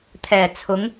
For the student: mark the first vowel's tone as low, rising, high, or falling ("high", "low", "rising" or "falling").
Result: low